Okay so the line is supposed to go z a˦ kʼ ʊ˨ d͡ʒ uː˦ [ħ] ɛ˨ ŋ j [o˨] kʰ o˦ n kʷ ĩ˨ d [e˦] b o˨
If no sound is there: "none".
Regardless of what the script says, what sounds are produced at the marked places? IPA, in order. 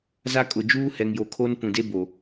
h, o˨, e˦

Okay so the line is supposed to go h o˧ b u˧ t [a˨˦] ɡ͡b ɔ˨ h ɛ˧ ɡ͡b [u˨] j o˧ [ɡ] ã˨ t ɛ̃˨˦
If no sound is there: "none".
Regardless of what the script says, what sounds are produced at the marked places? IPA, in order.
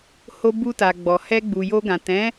a˨, u˨, ɡ

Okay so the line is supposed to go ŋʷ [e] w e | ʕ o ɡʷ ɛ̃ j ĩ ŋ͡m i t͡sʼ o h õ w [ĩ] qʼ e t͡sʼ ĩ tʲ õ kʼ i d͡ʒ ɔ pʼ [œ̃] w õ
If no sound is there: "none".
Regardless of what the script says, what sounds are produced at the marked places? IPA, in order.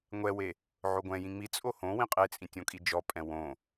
ɛ, ĩ, ɛ̃

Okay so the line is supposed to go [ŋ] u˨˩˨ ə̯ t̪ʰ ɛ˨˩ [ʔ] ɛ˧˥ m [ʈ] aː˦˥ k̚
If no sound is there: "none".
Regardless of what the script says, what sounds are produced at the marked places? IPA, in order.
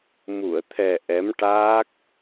m, ʔ, ʈ

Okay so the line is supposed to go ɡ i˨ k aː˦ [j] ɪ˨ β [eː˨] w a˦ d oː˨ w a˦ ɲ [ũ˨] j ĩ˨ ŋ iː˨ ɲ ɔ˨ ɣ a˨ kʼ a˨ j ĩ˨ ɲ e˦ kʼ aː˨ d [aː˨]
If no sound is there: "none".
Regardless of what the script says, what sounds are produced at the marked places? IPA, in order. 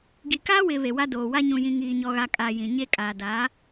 w, e˨, ũ˨, aː˨˦

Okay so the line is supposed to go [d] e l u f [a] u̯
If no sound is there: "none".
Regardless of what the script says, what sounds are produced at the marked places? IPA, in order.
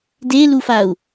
d, a

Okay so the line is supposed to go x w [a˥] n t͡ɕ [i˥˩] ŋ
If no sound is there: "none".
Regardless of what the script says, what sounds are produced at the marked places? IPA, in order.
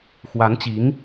a˧˥, i˧˥

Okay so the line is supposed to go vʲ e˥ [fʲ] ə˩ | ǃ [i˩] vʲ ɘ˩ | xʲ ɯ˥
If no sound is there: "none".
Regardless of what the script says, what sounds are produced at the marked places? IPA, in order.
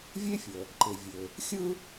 fʲ, ɪ˩

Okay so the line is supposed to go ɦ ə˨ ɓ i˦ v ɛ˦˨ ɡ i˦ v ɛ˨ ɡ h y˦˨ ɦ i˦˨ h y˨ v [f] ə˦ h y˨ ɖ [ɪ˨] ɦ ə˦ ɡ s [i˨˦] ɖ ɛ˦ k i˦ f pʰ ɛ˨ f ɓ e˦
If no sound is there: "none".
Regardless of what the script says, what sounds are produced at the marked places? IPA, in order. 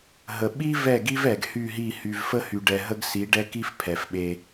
f, ɛ˨, i˨˦

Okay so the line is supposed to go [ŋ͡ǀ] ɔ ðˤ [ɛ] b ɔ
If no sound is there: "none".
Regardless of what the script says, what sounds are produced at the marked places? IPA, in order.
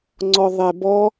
ŋ͡ǀ, ɛ

